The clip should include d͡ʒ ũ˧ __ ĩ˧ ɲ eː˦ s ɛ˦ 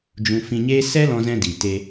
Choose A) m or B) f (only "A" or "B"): B